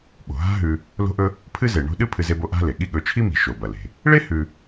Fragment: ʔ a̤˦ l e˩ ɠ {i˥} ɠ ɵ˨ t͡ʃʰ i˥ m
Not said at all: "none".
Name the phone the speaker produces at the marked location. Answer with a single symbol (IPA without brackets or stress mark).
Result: i˦